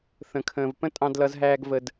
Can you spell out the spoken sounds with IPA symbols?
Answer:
θə̃˨kʰə̃ː˨vpə̃˦ tʼɑ̃˦dlʌ˦zɦæː˦ɡ və˦d

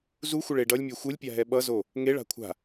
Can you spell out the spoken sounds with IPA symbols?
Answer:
zuxʷʌɭe ɖʌlʲmʲɛ xʷɯlʲpʲaɦɛ ɓʌzo | ŋeɭa̤ kʷʰa̤

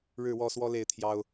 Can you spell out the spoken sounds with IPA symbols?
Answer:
ɻɻ̩˥˨wɔ˥˨swɔ˦ le˥˨ɪ̯t̪ʰjɑ˦ʊ̯

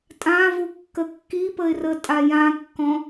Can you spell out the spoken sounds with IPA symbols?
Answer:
tʼãvu kːəkːipəɪ̯rə tʼajãkːɔ̃

